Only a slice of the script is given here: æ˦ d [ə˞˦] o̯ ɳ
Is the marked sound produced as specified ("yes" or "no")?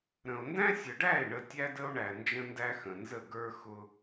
no